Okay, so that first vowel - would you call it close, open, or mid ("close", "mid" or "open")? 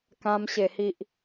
open